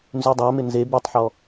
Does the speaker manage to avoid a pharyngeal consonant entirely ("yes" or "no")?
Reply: no